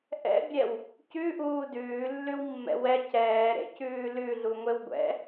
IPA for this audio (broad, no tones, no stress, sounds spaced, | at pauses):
ʔ ɛ̰ bʲ ɛ w | c ʉ ʔ uː d ʉː lː ʉ w mː ɛ̰ w ɛ c ɛː ɾ ḛ c ʉː l ʉ ɮ u ŋʷ e w ɡʷ ɛ̰